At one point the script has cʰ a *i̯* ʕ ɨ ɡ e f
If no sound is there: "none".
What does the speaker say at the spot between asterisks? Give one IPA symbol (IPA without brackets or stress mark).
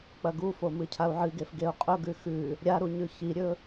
u̯